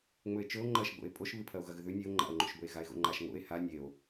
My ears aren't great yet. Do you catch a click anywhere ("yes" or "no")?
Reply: yes